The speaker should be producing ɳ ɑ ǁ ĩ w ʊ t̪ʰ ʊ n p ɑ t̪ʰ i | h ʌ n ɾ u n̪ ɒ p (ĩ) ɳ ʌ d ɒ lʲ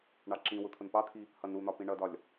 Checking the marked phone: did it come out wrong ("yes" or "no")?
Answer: no